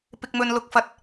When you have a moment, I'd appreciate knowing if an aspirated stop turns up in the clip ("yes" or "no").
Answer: no